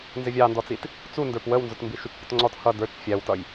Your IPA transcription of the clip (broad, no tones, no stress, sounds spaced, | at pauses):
n z ɪ vʲ ɑ n d ɔ t͡s i t | t͡s u n d ə˞ p w ə w n z ʊ t m b i ʃ u t͡ʃ pʲ ə t ŋ͡ǀ ɔ t h ʌ d ə˞ t͡ʃ fʲ æ w t ʌ j